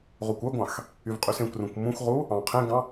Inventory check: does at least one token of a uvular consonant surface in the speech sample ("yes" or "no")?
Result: yes